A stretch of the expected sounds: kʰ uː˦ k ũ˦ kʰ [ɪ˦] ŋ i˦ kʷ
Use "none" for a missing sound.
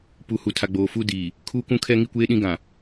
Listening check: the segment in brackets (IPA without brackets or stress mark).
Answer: ɛ˦